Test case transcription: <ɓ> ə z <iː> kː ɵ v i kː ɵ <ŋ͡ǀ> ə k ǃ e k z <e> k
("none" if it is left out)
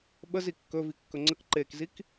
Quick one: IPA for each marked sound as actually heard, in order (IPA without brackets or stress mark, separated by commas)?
ɓ, i, ŋ͡ǀ, i